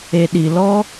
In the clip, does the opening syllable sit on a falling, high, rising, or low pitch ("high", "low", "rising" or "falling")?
low